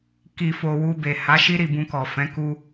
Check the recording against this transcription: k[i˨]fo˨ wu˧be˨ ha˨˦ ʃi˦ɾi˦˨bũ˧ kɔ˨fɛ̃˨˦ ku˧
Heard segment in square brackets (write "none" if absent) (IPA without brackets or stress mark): i˨